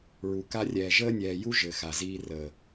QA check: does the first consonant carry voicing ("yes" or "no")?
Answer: yes